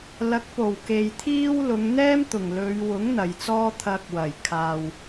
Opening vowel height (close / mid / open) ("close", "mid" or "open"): open